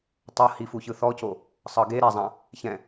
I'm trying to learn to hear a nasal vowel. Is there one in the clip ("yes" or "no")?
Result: yes